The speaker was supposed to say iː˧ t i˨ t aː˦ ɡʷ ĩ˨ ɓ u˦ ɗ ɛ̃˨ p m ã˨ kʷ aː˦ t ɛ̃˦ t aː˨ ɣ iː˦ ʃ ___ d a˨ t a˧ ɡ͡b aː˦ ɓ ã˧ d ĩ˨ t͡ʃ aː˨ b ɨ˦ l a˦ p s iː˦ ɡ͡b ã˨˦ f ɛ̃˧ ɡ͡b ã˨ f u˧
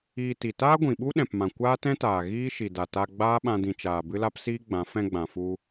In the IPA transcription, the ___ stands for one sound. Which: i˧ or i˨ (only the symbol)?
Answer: i˨